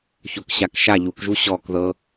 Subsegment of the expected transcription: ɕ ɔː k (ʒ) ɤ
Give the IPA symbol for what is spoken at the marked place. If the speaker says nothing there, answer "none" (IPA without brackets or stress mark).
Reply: ð